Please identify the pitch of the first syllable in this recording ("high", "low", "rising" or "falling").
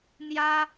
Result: high